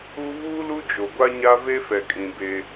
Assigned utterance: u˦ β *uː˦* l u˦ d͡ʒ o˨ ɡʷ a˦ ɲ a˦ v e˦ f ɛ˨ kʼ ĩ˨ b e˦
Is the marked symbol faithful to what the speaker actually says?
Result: yes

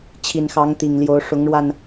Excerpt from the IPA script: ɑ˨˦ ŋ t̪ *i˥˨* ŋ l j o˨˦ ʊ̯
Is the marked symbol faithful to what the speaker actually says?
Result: no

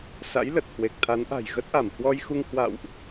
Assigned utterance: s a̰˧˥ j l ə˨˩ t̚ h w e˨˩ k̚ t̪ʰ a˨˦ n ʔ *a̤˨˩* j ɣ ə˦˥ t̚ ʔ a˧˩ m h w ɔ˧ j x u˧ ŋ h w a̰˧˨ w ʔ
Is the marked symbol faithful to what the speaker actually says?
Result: yes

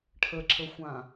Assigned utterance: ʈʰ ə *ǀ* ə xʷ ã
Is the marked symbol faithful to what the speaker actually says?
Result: no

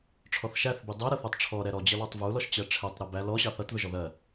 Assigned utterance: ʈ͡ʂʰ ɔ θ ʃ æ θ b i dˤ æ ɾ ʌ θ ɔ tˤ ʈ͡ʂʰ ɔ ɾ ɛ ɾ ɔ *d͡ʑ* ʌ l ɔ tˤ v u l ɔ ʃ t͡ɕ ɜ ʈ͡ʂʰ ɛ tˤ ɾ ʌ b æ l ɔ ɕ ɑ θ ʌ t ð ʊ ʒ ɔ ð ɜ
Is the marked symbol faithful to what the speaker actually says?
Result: yes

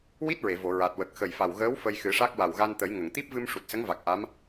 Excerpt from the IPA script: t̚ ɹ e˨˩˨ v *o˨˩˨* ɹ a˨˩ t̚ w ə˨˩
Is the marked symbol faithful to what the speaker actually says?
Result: yes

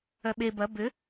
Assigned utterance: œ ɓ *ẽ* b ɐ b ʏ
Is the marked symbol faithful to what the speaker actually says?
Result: no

